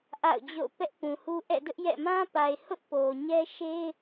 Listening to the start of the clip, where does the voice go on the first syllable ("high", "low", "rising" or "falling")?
falling